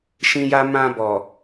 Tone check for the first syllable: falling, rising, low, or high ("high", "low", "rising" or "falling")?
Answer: high